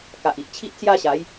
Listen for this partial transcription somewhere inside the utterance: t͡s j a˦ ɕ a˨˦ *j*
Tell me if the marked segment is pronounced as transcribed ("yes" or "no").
yes